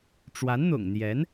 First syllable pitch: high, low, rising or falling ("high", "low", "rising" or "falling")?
rising